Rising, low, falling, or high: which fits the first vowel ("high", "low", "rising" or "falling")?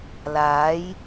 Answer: rising